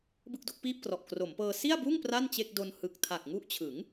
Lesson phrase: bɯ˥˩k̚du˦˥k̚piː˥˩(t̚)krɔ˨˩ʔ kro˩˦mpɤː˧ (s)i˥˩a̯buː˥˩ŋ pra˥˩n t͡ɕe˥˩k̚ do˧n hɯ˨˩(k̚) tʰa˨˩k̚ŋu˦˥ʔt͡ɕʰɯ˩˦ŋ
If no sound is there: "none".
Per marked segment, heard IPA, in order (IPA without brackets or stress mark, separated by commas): p̚, s, k̚